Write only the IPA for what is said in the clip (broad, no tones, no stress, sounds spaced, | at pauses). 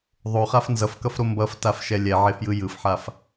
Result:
ðˤ o χ a f n z ʌ f k ʌ f ɾ o m b ʌ f t a f ʃ ɛ lʲ ɛ ʕ e f j ɯ j ɯ f ħ a f